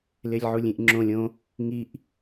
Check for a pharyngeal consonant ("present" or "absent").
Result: present